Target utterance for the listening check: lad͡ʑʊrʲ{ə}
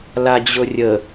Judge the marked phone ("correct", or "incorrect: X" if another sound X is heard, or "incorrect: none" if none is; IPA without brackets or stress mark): correct